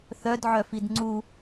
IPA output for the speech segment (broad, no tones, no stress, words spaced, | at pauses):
θœdʕœfid ŋ͡ǀu